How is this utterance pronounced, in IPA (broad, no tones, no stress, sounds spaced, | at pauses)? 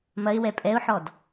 m ɐ ɪ̯ w ɛ pʼ ɛ ʊ̯ ħ ɔ d